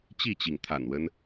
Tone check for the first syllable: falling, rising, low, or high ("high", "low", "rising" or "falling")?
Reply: falling